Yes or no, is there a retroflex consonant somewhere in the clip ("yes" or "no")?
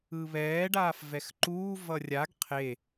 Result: yes